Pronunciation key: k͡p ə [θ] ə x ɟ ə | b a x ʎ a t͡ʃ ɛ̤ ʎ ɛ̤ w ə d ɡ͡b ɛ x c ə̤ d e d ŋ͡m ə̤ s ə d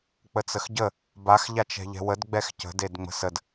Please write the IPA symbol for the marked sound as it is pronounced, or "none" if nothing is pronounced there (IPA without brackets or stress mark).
t͡s